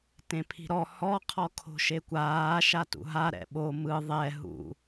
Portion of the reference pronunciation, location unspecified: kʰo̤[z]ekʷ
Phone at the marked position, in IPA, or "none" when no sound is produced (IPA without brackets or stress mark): ʃ